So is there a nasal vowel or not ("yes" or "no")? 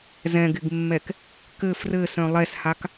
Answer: yes